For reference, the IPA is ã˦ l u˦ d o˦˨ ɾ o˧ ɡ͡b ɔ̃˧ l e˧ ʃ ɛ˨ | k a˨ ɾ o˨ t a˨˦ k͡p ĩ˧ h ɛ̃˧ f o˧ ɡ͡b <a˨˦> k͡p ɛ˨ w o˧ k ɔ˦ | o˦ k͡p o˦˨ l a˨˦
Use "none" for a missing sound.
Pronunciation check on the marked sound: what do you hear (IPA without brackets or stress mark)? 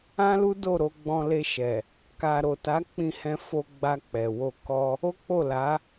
a˧